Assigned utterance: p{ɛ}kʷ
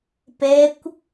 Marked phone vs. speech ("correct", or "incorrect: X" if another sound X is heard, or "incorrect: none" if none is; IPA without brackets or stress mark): correct